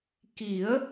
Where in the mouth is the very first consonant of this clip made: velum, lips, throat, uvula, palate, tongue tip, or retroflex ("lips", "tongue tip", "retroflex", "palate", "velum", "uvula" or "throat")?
velum